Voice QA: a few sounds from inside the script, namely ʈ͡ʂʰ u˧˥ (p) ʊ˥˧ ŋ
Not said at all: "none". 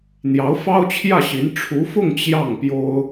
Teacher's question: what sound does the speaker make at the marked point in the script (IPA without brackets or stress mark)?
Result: f